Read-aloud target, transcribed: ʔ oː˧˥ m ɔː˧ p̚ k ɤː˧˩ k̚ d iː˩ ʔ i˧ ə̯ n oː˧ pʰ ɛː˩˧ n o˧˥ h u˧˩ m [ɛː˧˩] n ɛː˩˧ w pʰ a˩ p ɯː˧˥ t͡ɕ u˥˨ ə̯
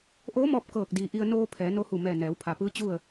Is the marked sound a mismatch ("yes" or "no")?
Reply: no